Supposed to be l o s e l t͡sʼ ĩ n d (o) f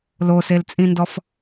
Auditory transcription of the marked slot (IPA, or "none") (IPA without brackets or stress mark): ɔ